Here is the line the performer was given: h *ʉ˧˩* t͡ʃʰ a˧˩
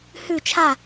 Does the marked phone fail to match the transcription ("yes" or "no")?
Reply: no